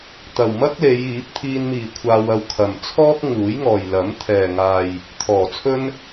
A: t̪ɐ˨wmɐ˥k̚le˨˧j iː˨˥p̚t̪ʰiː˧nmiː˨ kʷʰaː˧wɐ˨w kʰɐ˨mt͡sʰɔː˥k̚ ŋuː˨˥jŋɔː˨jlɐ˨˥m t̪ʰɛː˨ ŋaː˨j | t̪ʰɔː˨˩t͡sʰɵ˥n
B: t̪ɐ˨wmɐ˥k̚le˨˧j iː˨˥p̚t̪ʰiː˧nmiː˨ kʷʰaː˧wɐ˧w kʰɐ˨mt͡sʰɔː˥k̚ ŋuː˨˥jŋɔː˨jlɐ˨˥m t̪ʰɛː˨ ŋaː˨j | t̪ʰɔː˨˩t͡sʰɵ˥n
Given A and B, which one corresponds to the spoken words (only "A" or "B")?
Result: B